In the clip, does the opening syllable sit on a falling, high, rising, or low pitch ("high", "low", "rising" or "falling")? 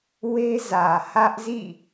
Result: high